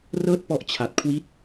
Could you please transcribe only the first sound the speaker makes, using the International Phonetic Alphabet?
r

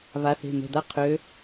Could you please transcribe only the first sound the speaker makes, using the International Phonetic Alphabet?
β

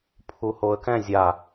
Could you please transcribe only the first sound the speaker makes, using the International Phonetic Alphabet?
pʰ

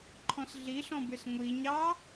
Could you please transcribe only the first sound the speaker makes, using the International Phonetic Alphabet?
ǃʰ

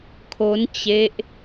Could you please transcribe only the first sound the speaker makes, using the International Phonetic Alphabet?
kʰ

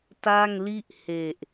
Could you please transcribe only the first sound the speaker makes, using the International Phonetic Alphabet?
t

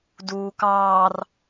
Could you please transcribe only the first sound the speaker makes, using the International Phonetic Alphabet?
d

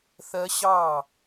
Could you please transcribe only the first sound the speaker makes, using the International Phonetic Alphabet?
θ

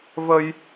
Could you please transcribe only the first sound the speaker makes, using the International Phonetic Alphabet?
v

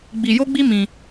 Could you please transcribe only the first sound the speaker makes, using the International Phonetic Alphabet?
ɡ͡b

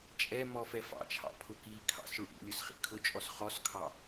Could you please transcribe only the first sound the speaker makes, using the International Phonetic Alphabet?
t͡ʃʼ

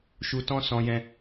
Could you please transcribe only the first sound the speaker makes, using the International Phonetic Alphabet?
ʃ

